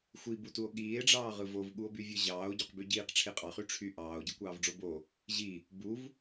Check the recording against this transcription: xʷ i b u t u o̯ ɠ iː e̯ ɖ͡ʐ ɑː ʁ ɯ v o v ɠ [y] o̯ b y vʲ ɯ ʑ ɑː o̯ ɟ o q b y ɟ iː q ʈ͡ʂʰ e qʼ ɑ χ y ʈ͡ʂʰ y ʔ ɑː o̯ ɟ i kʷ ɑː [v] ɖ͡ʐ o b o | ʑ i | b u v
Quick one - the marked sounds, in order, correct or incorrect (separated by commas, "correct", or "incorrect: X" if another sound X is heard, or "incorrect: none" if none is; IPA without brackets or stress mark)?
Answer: incorrect: u, correct